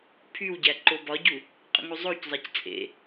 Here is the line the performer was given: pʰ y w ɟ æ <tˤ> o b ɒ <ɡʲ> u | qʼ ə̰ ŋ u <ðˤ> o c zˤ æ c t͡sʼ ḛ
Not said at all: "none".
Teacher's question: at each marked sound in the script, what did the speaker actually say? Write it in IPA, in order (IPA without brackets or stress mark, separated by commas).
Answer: ǃ, ɟ, zˤ